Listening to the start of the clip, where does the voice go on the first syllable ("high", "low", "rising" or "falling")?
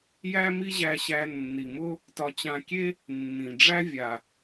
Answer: high